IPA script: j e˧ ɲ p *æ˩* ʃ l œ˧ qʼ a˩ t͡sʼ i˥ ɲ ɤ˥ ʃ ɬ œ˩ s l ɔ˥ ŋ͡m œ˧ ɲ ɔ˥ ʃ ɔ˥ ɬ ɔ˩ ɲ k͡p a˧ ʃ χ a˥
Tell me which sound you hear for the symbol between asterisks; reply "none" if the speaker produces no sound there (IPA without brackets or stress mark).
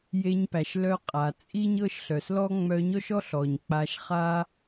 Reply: æ˩